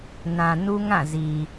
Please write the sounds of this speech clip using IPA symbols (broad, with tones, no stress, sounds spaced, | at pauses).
n ã˨ n u˦ ŋ ã˦˨ z i˨